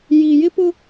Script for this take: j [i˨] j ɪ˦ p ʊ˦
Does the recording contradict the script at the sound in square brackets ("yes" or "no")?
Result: no